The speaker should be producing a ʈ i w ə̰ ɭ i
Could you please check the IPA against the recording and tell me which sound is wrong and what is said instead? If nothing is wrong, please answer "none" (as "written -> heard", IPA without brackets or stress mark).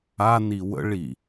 ʈ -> n